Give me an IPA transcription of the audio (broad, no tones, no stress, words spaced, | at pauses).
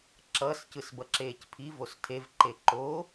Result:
ǁʌs cɯsbʌǁeːcpʰi vostʰev ǃeǃo